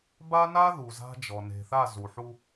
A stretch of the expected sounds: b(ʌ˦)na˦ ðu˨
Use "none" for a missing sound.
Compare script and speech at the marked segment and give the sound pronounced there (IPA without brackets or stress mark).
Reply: a˦